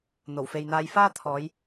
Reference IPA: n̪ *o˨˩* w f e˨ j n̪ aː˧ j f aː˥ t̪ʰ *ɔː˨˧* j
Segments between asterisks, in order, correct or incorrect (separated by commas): correct, correct